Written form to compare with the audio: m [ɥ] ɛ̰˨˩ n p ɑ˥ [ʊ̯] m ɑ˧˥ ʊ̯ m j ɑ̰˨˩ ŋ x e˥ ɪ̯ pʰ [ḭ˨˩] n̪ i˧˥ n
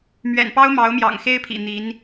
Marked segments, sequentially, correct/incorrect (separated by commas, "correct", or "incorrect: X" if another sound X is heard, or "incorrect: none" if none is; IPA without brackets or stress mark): correct, correct, correct